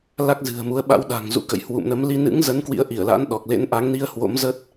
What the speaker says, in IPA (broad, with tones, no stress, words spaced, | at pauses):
la˦˥k̚zɨ̤˨˩ə̯mu˨˦ə̯ ɓa̰˧˥wɗa̤˨˩ŋ zṵ˧˥kə̰˧˨j hwṵ˧˨mnə˨˦m li˧ nɨ̰˧˥ŋzə˨˦n kwḭ˧˥ə̯ʔi˧˩ə̯la̰˧˥n ɗɔ˨˩k̚ lḛ˧˥nʔa˨˦ŋni˧ə̯ hwo̰˧˥mzə˦˥t̚